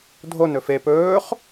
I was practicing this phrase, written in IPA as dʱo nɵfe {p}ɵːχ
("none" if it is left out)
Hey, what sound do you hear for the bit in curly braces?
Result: p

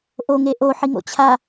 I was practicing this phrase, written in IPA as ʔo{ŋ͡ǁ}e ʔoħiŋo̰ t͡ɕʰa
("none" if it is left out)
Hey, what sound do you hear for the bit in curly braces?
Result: ŋ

